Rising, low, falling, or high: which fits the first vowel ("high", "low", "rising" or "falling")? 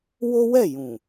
high